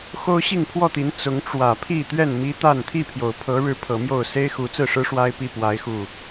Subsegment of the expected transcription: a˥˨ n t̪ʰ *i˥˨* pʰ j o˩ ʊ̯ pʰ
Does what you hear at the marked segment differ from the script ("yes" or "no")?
no